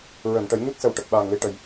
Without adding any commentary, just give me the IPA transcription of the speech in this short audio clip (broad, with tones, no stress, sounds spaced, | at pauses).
ɹ əː˨˩˨ n ʈ ə˨˩˦ j ɲ u˦˥ t̚ s ə˨˩ w ʈ ə˨˩ k̚ ɓ aː˨˩ ŋ l i˧ ʈ ə˨˩ j